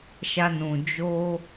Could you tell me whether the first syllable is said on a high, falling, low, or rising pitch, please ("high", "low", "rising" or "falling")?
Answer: high